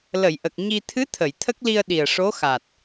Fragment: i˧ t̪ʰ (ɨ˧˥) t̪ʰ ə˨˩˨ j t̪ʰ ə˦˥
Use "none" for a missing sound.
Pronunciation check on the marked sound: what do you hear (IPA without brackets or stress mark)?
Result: ɨ˧˥